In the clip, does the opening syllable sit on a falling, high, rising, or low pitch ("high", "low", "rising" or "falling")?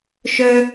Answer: high